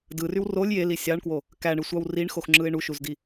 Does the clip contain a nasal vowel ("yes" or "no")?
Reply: no